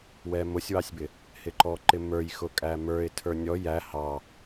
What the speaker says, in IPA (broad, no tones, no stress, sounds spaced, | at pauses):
w ɛ m ʊ sʲ w ɑ sʲ b ɪ | h ɪ ǃ ɔ ǃ ɪ m ə˞ j x ʊ kʼ æ m ə˞ ɪ̯ tʰ ə˞ nʲ ɔ j æ h ɑ